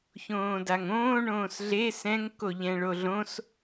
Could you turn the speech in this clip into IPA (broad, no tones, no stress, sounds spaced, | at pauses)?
ç õː d a ŋ õː ɳ õː s ɮ e s ɛ̃ ŋ k o ʎ ɛ̃ ɭ o ɮ õ s